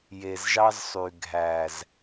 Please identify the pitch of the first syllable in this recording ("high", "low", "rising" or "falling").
low